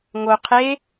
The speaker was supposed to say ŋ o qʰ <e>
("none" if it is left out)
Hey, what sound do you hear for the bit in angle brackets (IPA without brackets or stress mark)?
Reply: e